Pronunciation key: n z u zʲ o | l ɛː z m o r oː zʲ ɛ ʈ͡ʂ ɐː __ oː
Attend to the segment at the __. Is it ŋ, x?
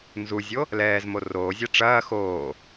x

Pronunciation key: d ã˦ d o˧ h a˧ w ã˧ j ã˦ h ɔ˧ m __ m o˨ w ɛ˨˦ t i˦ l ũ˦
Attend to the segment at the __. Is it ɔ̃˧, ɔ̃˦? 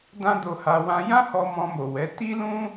ɔ̃˧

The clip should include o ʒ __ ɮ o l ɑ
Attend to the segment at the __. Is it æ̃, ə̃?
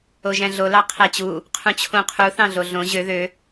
æ̃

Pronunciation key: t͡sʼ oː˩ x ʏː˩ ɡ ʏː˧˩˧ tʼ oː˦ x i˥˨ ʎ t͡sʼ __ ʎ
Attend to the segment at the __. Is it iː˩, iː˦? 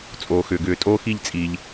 iː˩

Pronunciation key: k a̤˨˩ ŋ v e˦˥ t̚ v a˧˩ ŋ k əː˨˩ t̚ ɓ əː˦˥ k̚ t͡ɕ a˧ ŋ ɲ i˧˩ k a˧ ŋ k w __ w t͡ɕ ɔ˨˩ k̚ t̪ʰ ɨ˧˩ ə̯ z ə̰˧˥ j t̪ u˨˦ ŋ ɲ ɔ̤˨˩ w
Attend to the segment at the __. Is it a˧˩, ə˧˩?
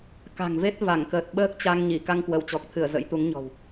ə˧˩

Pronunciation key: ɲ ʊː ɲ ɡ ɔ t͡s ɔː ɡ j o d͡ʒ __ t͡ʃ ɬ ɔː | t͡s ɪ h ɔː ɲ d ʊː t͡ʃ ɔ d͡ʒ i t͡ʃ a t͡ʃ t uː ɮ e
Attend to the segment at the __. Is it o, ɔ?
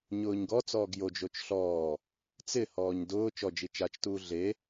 o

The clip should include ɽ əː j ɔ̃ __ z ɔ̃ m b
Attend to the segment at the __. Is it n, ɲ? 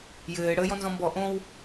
n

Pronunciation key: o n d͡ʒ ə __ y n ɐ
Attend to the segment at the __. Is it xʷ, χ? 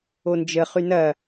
χ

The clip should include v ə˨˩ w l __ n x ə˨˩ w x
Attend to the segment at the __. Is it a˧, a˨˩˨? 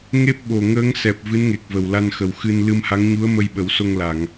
a˧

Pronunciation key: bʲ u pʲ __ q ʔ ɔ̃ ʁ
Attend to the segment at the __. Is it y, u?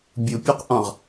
u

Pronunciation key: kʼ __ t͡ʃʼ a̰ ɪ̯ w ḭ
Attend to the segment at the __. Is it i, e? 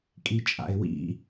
i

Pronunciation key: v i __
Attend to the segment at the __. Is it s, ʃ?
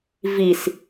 s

